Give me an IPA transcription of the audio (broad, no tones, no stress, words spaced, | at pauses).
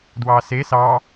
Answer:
dwɑse sɑ